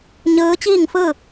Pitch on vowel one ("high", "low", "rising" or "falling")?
rising